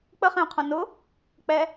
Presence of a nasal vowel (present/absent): present